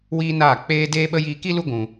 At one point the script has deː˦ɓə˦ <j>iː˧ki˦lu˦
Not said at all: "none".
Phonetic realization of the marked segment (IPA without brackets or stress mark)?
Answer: j